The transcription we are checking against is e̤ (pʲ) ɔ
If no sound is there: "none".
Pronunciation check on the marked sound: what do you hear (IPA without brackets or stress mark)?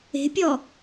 pʲ